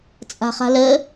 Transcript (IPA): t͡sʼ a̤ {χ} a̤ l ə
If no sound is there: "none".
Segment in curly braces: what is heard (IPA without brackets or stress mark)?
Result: χ